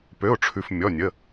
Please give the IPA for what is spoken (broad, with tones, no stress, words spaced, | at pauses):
pø˩˧˩ʊ̯ʈ͡ʂʰʉ˩f mʲɔ˩˧˩nʲə˩˧˩